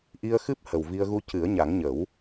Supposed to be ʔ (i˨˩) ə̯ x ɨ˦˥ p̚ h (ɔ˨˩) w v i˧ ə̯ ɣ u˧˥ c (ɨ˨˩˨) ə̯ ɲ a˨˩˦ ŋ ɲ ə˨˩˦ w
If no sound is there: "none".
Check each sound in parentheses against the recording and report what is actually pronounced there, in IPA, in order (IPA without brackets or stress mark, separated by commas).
i˧, ə˨˩, ɨ˨˩˦